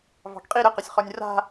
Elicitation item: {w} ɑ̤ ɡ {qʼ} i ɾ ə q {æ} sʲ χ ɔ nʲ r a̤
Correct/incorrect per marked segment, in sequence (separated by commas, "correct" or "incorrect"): incorrect, correct, incorrect